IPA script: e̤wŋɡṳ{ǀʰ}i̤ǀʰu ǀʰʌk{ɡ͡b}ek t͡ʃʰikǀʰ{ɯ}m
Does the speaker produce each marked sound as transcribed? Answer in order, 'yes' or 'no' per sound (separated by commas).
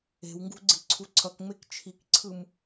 no, no, yes